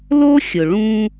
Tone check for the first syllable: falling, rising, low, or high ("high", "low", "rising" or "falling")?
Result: high